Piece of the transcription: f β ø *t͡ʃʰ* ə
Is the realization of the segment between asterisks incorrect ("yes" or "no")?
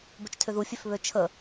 no